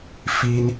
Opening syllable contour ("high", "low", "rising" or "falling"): high